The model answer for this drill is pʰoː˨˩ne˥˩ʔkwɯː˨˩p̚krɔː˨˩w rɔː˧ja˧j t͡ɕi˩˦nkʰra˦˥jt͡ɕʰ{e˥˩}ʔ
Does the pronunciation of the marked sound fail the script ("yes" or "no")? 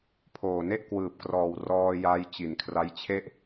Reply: no